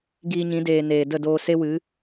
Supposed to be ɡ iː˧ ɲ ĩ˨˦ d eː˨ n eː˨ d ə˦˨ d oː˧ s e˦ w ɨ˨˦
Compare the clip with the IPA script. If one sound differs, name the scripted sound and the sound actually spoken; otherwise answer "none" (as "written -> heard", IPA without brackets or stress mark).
none